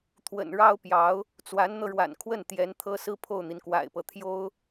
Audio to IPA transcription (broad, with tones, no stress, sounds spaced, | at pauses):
t̪ʰ w ə̰˨˩ n ɻ ɑ˥ ʊ̯ p j ɑ˧˥ ʊ̯ | t͡s w a˧˥ n n̪ ɤ˧ ɻ w a̰˨˩ n kʰ w ə˥˩ n t̪ j ɛ˧˥ n t̪ʰ ɤ˥ s ɹ̩˥ pʰ o˥˩ ʊ̯ n̪ i˩ n k w a̰˨˩ ɪ̯ p ɤ˦ t̪ʰ j o˥ ʊ̯